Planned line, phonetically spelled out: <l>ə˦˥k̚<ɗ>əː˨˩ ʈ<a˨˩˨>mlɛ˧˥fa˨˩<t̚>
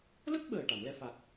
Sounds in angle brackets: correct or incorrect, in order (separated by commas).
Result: correct, incorrect, correct, incorrect